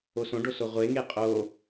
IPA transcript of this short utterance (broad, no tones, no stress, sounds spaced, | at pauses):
o s õ ɖ o s o ʁʷ e ŋ e qʼ o